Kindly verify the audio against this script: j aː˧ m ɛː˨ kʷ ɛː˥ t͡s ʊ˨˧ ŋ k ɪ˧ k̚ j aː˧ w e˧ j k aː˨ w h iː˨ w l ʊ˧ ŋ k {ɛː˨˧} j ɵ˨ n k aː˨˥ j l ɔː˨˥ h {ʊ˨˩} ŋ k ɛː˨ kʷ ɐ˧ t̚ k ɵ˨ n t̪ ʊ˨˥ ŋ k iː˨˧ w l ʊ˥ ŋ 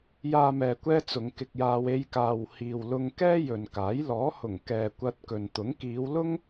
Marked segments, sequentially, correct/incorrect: incorrect: ɛː˥, correct

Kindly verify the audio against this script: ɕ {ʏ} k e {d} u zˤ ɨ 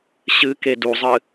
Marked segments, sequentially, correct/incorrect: incorrect: ɨ, correct

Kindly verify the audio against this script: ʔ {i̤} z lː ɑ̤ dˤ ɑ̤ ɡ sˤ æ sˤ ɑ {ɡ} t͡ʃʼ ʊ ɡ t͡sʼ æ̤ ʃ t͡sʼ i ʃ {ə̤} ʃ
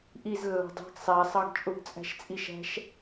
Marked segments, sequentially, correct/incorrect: incorrect: i, correct, incorrect: æ̤

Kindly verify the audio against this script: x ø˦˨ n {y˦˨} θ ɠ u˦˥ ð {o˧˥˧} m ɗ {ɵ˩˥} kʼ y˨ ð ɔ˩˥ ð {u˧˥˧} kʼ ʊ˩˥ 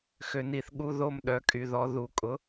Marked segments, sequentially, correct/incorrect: incorrect: i˦˨, correct, incorrect: œ˩˥, incorrect: u˨˩˦

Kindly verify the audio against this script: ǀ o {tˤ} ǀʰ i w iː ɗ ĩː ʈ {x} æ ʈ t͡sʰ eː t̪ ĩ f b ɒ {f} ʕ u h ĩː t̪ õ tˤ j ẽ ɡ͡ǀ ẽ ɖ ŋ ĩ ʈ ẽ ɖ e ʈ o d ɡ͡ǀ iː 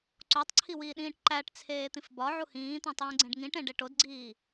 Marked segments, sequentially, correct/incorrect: correct, incorrect: ǃ, incorrect: none

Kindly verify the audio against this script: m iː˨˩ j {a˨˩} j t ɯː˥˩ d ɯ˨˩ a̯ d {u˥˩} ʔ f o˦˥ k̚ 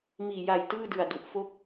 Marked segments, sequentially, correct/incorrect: correct, incorrect: u˨˩

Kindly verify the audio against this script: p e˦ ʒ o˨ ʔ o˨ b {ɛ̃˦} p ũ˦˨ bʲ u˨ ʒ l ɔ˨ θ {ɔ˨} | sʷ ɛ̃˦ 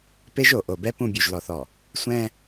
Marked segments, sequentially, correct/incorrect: incorrect: ɛ˦, correct

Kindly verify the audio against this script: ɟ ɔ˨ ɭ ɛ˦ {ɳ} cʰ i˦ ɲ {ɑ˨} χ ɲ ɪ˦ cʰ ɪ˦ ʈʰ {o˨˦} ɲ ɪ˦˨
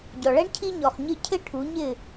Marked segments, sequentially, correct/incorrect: correct, incorrect: ɔ˨, incorrect: u˨˦

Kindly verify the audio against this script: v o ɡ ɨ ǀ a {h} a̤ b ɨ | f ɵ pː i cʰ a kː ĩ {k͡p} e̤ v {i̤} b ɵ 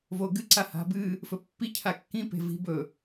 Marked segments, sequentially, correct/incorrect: correct, incorrect: p, correct

